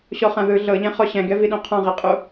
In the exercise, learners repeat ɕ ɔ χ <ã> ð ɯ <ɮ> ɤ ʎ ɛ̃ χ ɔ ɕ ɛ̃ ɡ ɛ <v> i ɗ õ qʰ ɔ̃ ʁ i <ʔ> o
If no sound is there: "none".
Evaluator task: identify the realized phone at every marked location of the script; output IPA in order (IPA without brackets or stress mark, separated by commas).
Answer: ã, ɮ, v, qʼ